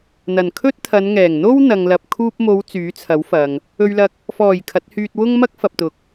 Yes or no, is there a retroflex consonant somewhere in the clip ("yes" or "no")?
no